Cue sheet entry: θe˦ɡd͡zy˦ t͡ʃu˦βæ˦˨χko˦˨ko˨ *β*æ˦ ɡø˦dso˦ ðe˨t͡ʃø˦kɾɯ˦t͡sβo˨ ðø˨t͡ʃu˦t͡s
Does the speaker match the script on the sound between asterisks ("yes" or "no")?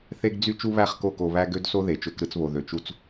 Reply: yes